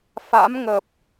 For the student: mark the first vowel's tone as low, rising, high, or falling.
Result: rising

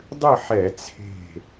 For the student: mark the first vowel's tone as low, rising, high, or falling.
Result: falling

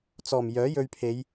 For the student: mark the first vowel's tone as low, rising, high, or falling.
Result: low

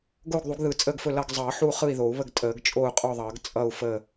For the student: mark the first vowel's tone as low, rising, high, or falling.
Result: falling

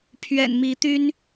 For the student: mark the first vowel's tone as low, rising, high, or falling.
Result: low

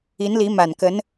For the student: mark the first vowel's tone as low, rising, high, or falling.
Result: rising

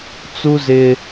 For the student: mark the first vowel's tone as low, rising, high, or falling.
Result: high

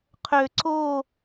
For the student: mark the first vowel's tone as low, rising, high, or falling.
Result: low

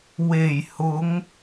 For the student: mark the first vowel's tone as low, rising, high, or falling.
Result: low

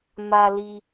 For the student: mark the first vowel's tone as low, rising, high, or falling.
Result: low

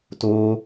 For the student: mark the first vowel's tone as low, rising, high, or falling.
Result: high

